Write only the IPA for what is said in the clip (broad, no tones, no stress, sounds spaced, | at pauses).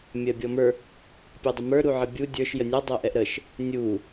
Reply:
mʲ ɜ bʲ ɔ m ə˞ | pʲ ɜ dˤ ə m ə˞ ɾ u ʕ ə bʲ u dʲ ə˞ ʃ j ə nʲ ɔ dˤ ɜ ʔ ɛ ʔ ɾ ə ʃ | nʲ u